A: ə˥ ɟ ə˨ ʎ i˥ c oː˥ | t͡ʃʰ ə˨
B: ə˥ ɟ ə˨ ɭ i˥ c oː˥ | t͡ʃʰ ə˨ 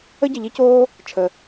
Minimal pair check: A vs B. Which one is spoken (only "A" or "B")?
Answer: A